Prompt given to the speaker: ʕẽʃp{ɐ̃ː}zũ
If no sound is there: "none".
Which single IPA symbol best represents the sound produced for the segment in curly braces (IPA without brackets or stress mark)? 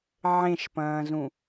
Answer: ɐ̃ː